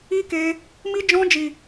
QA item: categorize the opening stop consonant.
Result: plain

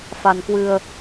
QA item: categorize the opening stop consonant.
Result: plain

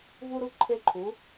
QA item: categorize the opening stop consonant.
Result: click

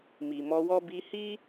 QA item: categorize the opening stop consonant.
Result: plain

